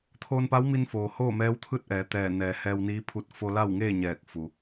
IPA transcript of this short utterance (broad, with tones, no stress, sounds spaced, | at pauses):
t̪ʰ oː˧ n p a˧˥ w m i˧ n f oː˩ h oː˥˨ m ɛː˧˥ w t̪ʰ ɯː˥˨ t̚ ʔ ɛː˩˧ t̪ ɛː˧˩ n ɛː˩˧ h ɛː˧ w n iː˧˥ pʰ u˧ t̚ f o˧ l a˥˨ w ŋ eː˥˨ ɲ ɛː˧˩ k̚ f u˩